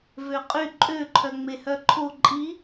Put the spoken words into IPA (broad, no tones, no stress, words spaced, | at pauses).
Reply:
vøqʼy ǃʼøǃʰœ ŋ͡mehœǃʰo ǃʼi